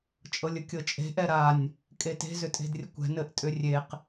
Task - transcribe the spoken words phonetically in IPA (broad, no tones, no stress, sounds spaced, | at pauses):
t͡ʃʼ ɤ lʲ ə kʲ ɤ t͡ʃʼ e̤ ʔ ɛ ɾ a nʲ | kʼ e t e̤ z ʏ tʼ e̤ d rʲ ə kʷ ɛ̤ n ɘ ʔ tʼ ʏ rʲ e q